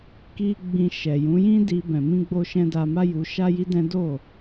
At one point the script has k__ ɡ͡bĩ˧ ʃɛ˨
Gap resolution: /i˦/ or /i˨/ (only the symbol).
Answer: i˦